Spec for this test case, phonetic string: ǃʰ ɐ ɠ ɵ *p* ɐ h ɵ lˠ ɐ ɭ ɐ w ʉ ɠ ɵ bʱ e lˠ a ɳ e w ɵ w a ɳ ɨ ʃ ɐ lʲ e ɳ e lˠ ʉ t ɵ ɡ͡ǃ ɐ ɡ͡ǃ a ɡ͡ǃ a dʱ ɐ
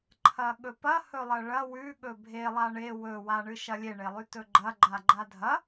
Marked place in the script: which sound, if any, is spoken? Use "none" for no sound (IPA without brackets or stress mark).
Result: p